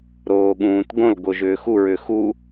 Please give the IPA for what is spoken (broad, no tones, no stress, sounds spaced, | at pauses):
ɾ oː ɠ ũː t ɡ õ l ɡ o ʒ ʏː x u ɹ ʏ x u